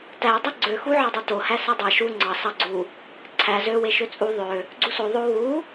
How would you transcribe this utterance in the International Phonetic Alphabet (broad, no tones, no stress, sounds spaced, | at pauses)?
t æ dˤ e ɡ͡ǀ ø x u ʕ ɑ dˤ ø t o h æ s æ dˤ æ ʃ u ŋ͡ǀ ɑ s ɑ ɡ͡ǀ u | ǀʰ æ z ø w e ʃ ø t͡sʼ u ðˤ ø | ɡ͡ǀ u s o ðˤ o w u